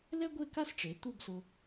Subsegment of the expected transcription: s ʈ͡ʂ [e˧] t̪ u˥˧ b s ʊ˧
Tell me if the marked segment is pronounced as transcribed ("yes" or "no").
no